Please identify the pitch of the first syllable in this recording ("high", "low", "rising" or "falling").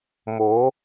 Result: rising